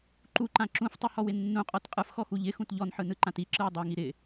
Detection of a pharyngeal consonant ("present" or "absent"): present